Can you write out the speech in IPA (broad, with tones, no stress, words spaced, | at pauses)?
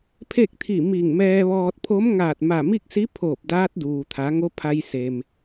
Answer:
pʰe˥˨k̚t̪ʰi˧˩ mi˧˩ŋmɛː˧ʋɔː˧t̚pʰo˧˥m ŋaː˧˩t̚ma˧˩mi˥˨k̚si˧˥ pʰoː˧˩p̚daː˧˥t̚ duː˩t̪ʰa˩˧ ŋo˧˥pʰa˧jse˩m